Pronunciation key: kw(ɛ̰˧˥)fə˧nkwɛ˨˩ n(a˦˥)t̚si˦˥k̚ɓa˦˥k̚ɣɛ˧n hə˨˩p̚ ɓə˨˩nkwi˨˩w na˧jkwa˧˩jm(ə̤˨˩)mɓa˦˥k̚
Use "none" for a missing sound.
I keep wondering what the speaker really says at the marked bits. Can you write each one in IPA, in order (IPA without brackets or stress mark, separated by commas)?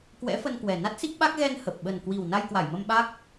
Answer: ɛ̰˧˥, a˦˥, ə˧